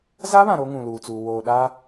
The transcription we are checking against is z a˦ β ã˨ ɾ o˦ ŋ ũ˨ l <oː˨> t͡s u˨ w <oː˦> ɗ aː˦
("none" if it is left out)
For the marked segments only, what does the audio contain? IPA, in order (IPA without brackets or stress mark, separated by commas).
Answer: uː˨, oː˨